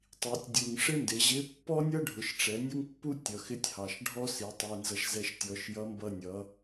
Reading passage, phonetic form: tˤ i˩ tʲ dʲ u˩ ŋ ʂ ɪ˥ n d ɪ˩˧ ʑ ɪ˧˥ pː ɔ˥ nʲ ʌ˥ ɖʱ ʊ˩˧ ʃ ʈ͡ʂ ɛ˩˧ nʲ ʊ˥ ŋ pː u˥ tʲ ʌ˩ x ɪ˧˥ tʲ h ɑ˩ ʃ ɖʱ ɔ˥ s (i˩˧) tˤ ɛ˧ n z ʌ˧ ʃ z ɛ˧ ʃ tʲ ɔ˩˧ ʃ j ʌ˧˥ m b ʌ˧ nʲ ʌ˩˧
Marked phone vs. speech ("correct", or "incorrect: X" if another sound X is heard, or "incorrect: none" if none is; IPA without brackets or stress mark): correct